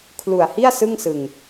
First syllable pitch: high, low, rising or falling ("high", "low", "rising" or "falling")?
low